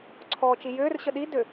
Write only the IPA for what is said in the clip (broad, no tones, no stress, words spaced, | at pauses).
ǀʰɔːt͡ʃijʏːr ɕəɗi dʏ